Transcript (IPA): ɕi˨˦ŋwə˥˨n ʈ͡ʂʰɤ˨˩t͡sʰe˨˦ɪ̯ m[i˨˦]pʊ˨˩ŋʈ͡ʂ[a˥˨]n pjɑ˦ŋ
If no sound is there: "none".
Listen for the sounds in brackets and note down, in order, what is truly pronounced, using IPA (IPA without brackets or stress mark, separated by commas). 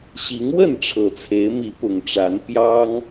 i˨˦, a˨˦